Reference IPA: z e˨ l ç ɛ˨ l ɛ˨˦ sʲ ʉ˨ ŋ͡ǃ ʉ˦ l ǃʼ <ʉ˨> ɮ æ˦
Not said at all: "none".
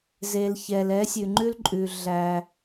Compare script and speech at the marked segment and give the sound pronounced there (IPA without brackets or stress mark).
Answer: ʉ˨